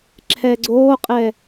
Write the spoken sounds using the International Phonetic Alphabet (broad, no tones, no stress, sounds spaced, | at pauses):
ǁʰ ɛ ɡ͡ǀ oː qʼ ɛ